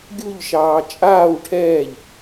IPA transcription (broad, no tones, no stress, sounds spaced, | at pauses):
ɡʲ u ʎ ʃ ɑː t͡ʃʼ aː w ʈʰ ɛː ʎ